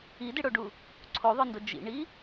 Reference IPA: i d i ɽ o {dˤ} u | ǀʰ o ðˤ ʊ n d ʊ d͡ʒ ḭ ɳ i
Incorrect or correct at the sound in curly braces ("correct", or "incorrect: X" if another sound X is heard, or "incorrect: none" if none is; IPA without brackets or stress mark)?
incorrect: ɖ